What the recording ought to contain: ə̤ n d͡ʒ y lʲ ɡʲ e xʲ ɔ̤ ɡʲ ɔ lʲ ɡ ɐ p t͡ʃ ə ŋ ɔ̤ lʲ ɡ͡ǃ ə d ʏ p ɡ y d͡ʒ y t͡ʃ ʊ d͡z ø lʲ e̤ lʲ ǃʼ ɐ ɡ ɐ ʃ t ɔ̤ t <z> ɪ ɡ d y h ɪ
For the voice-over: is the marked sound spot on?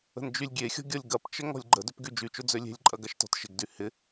no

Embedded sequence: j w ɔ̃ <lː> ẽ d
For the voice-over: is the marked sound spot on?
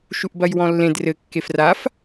yes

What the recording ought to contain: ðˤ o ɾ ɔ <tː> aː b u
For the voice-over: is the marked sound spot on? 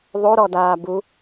no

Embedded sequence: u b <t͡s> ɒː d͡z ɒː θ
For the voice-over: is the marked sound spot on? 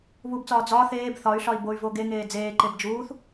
yes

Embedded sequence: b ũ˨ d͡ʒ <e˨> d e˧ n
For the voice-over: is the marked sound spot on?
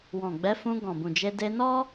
no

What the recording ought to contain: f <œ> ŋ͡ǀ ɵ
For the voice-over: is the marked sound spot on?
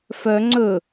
yes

